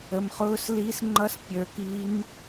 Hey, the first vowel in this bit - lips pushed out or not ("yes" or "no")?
no